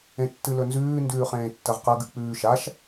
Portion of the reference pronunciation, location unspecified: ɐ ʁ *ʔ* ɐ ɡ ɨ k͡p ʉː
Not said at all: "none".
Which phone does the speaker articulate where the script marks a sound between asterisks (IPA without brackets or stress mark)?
q